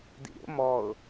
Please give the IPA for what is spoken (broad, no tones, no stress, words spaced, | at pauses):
dḭɾʲo̰ mɔʊ̯